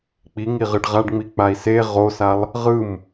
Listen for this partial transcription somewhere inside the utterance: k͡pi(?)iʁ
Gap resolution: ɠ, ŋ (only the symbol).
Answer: ŋ